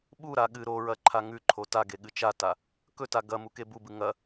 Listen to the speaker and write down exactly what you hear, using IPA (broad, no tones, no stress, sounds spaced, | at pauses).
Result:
ɓ u ɾ a ɠ ɨ ɾ o ɹ ɐ ǃʰ a ŋ ʉ ǃʰ o t a ɡ e ɠ ɨ t͡ʃ a t a | k ɵ t a ɡ ɐ m u k e b u b ɨ ŋ ɐ